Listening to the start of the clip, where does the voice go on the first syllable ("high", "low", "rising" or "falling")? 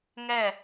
falling